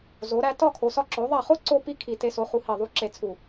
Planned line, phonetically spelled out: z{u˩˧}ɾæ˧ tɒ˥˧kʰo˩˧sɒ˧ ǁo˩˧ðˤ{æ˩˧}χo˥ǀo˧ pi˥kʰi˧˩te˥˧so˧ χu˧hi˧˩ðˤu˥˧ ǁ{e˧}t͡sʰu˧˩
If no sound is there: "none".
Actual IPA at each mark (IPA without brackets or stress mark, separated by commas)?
o˩˧, æ˧˩, e˧